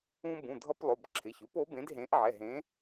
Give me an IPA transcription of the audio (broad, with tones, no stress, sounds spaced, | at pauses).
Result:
ũ˦ b ũ˩˧˩ dʱ ʌ˦ p lˠ o˩˧˩ b ǁʰ ɪ˩˧˩ ç ʉ˨˥ p o˨˥ b ẽ˨˥ d ɦ ẽ˨˥ ʔ ʕ ɛ˩˧˩ ɦ ẽ˨˥